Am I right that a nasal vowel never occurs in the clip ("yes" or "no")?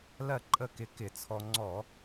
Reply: yes